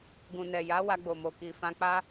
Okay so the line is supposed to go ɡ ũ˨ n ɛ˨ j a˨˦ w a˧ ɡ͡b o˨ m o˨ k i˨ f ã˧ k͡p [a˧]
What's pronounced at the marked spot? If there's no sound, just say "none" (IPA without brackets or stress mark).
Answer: a˦